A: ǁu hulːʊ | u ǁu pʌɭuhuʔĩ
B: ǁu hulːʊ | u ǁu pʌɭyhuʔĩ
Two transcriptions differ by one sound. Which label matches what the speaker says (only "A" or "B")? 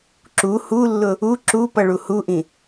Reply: A